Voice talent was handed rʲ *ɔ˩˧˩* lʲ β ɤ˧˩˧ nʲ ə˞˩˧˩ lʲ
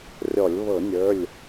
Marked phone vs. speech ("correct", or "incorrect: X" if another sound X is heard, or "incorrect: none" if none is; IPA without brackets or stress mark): incorrect: ɔ˧˩˧